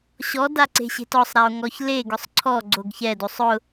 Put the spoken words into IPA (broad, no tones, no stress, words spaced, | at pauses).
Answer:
ɕɔdaǀe̤ɕe̤t ɔsˤɾao̯ ŋɔçle ɡʊsˤǀʰɔ ɡ͡ǀoɡçɛdosˤ ʊ